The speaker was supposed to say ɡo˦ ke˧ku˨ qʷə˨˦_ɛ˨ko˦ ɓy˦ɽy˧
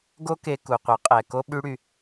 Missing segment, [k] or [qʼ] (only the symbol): qʼ